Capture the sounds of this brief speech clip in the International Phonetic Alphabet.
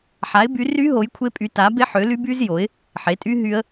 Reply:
ħ a˨˥ ɪ̯ b y˨˥ r y˦˥ ɦ o˨˥ j kʷʰ e˦˥ pʼ y˨˥ t a˨˥ b e˦˥ ħ ø˨˥ l y˦˥ b y˦˥ z j o˨˥ ɪ̯ | ħ e˨˥ tʼ y˦˥ ɦ y˦˥ ə̯

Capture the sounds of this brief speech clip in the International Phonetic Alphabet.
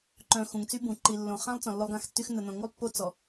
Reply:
ǃ œ̃˨ x ũ˨ ŋ t͡s y˦ b ũ˨ ǃ i˨ lː õ˨ χ ã˦ lˠ t͡s ɔ̃˨ lː o˦ lˠ ɡ ã˦ x tː y˦ x n ə˨ n õ˨ ŋ u˦ lˠ pː o˦ t͡s ɔ˨

